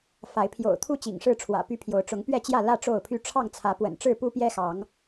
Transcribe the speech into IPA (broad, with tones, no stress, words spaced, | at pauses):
fa˨˦ɪ̯ pʰjo̰˨˩ʊ̯t̪ʰu˥˨t͡ɕḭ˨˩ŋ ʂɻ̩˥˨ʈ͡ʂʰwä̰˨˩py˦pʰjo˨˦ʊ̯ ʈ͡ʂʊ˨˦ŋpɥɛ˥˨t͡ɕjä˥˨lä˥˨ ʈ͡ʂo˥˨ʊ̯pʰy˦ ʈ͡ʂʰɑ˥˨ŋt͡sʰä˨˦pwə̰˨˩n ʈ͡ʂɻ̩˥˨pu˦pjɛ˦xɑ˨˦ŋ